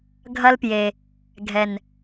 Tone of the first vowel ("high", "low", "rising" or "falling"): high